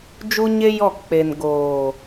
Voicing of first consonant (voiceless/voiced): voiced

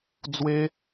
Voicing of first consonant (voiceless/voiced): voiced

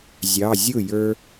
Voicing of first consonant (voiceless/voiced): voiced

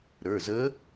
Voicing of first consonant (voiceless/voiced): voiced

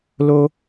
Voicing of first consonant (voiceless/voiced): voiced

